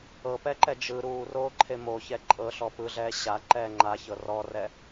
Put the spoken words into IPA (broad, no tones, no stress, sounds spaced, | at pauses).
ɤ p ɛ ǃ ɛ d͡ʒ ɯ ɾ uː r oː ǃʰ e m o ç ɛ ǃʼ ɤ ɬ ɔ p ɯ ɮ ɛː ɕ a ǃ ɛː ŋ͡ǃ a ç ɤ r ɔ r ɛ